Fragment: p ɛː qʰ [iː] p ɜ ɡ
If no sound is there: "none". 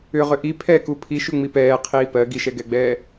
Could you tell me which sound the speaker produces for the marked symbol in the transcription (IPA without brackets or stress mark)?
iː